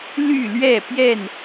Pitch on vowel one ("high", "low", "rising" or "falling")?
falling